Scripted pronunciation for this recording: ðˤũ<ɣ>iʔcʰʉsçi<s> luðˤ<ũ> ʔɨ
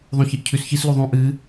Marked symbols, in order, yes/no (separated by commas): no, yes, yes